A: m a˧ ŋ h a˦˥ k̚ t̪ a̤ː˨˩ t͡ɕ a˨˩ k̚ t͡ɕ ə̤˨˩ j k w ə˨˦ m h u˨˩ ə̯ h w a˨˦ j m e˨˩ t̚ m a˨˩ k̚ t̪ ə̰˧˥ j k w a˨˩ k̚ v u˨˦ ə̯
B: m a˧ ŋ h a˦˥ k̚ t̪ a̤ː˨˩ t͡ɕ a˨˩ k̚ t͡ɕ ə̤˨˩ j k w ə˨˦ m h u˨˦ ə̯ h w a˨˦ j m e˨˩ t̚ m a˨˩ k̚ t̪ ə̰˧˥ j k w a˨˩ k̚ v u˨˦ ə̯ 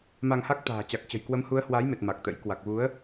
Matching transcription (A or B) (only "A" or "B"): B